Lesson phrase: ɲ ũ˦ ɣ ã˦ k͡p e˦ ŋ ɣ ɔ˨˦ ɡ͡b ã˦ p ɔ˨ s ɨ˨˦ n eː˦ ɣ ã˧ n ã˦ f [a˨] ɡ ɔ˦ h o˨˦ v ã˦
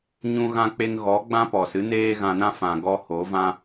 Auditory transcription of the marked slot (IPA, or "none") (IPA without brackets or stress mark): ã˨